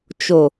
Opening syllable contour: low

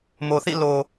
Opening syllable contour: low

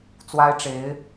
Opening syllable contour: high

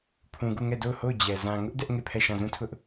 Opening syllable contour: low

